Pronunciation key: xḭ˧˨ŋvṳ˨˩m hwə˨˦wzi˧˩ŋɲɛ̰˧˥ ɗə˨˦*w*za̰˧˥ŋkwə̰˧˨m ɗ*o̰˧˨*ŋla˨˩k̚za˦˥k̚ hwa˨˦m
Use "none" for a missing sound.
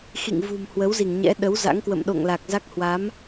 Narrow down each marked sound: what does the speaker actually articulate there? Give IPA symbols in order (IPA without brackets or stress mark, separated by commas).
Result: w, o̰˧˨